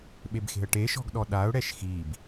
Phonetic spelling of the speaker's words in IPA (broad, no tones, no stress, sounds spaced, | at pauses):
ɓ e b x e̤ ə̯ ʈ e ʃ ɔ̤ ɡ ɗ ɔ ɗ a ʊ̯ ɽ ɛ ʃ x i b